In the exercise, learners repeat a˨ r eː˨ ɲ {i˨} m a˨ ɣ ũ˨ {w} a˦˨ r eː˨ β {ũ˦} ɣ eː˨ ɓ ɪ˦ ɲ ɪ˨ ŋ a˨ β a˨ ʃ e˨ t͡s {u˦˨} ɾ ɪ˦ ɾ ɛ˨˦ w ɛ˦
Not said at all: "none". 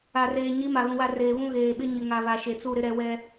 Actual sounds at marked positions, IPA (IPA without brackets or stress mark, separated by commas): i˨˦, w, ũ˦, u˦˨